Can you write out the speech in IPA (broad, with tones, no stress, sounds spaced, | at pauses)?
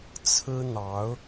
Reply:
t͡sʰ ɹ̩˥ n̪ ɑ˧˥ ʊ̯